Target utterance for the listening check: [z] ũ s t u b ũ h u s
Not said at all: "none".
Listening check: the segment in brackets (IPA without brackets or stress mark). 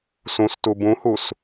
s